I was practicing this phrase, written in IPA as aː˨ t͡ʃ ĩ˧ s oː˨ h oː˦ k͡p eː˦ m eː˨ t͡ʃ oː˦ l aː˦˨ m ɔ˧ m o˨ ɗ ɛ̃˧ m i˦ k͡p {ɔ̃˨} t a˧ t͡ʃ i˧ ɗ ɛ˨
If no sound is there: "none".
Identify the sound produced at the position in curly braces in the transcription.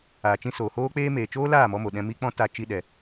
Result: ɔ̃˦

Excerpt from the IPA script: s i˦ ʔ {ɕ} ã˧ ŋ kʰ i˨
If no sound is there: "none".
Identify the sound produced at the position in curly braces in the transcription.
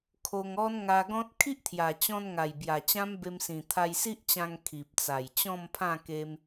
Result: t͡ɕ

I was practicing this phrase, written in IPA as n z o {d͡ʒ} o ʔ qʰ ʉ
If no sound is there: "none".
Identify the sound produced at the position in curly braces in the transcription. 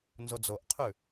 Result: d͡z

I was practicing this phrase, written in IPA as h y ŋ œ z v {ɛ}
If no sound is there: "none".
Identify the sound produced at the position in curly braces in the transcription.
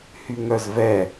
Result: ɛ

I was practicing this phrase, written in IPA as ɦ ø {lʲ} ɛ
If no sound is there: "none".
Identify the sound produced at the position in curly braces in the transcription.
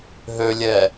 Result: lʲ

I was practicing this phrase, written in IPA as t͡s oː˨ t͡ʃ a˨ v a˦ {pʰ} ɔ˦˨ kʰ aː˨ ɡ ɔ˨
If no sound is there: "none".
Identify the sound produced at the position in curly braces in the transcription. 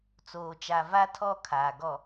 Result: tʰ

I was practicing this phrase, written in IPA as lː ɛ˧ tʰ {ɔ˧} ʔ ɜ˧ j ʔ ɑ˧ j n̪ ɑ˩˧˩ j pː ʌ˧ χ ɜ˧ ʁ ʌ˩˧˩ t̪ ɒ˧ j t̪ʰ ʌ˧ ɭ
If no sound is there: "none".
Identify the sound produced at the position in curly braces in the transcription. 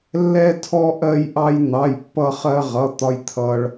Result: ɔ˧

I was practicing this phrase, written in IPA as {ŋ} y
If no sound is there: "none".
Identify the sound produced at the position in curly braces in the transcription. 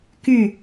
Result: k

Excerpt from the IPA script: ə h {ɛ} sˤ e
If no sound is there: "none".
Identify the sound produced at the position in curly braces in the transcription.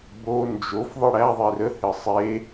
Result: ɘ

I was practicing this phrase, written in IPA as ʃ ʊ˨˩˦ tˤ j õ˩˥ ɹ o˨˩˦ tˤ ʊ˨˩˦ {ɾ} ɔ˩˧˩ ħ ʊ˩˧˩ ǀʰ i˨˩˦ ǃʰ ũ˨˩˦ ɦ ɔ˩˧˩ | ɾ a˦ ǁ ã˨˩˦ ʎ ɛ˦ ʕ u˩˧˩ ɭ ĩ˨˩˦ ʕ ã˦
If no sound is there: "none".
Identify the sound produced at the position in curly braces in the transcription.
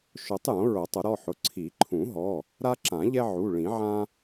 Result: ɾ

